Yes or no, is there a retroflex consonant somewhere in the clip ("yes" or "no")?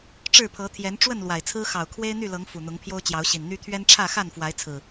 yes